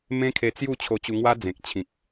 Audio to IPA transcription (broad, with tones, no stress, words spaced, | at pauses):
mẽ˦kʰe˧t͡sju˥˧ t͡ɕʰo˧t͡ɕu˧ŋwa˦ d͡zẽ˨k̚t͡ɕʰĩ˨k̚